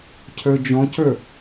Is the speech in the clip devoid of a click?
yes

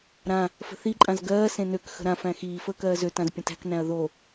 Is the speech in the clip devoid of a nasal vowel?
no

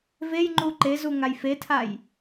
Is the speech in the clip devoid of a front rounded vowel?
yes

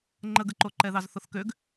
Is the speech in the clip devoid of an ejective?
yes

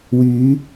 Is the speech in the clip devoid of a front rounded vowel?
no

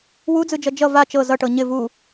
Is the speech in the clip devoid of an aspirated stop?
yes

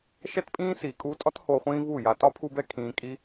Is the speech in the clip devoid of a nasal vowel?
no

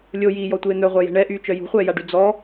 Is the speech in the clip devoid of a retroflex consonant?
no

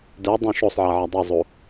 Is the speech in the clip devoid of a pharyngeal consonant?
no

